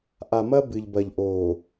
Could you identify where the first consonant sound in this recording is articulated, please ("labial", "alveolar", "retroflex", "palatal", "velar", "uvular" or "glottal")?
glottal